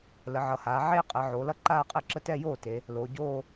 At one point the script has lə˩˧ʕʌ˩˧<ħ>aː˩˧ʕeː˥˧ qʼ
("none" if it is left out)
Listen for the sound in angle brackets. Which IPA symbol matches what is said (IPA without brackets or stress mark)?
h